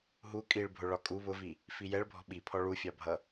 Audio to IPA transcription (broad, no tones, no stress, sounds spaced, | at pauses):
ɦ u kʼ i ɭ bʱ ʊ ɭ ɒ kʼ u β ʊ v i | f i j ɛ ɭ bʱ ɔ̤ ɓ i pʰ ɔ ɭ u fʲ ɑ bʱ ʌ